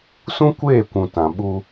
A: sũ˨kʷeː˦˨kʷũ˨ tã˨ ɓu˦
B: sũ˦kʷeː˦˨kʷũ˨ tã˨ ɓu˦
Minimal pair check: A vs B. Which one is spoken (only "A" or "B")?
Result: B